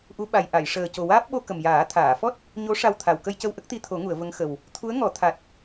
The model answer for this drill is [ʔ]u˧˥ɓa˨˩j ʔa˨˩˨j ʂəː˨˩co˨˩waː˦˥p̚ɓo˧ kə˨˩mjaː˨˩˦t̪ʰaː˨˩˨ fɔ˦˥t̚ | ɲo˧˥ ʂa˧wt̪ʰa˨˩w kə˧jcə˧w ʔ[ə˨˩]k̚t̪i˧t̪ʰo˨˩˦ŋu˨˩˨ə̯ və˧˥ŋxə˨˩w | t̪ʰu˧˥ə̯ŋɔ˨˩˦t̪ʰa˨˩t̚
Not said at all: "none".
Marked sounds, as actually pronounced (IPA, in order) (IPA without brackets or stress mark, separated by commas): ʔ, ə˦˥